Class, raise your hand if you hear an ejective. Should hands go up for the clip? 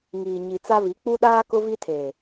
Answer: no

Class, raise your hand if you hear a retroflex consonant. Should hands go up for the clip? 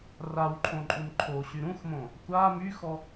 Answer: no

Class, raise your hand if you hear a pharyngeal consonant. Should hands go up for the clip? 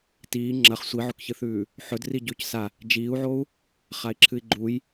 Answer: yes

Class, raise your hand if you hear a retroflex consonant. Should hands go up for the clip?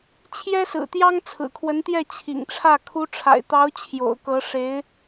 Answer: yes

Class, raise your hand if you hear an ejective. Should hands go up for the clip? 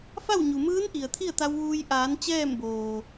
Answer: no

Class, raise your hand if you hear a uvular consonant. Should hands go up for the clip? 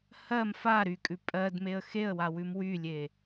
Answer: no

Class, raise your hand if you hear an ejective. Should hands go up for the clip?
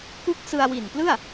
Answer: no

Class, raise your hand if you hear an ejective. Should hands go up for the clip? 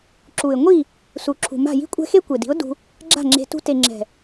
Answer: yes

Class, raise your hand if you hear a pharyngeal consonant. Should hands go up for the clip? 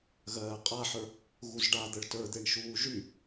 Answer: yes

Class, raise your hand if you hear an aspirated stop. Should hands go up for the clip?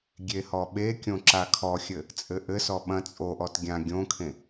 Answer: yes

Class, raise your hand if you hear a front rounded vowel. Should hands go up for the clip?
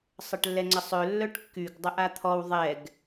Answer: yes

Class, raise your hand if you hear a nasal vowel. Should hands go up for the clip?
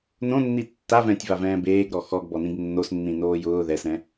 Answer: yes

